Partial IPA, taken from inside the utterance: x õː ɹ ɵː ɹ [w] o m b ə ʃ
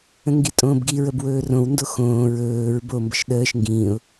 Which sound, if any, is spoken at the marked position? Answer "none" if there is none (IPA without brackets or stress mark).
b